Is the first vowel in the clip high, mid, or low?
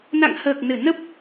low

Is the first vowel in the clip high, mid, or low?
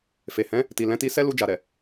mid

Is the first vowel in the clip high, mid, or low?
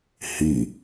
high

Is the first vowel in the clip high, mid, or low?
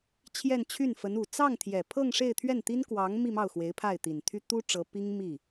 mid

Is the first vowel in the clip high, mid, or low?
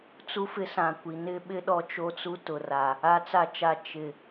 high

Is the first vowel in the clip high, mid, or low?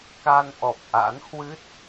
low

